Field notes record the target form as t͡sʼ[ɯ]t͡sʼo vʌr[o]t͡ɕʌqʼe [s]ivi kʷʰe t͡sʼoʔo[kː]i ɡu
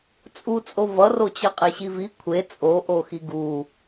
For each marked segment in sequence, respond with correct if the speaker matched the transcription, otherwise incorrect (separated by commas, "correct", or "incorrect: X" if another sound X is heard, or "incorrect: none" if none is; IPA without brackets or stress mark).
incorrect: u, correct, incorrect: ɕ, incorrect: x